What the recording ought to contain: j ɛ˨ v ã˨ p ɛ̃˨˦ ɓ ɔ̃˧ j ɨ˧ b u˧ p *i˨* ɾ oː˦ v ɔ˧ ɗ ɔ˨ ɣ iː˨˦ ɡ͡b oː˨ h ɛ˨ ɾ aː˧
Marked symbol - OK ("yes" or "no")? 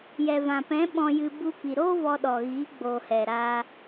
yes